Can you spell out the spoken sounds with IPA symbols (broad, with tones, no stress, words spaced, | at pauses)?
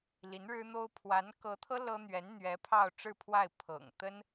li˧˥nɻɻ̩˥n̪o˥ʊ̯ pʰwa˧˥n kɤ˧˥t̪ʰɤ˥ lɤ˥ n̪ɥɛ˧˥nn̪ɥɛ˧˥ pʰɑ˥˧ʊ̯ʈ͡ʂɻ̩˥˧pʰwa˥˩ɪ̯ pʰɤ̰˨˩ŋ t̪ə˥n